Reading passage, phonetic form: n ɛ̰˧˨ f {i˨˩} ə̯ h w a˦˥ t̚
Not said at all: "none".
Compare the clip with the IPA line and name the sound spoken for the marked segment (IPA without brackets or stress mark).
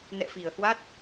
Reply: i˨˩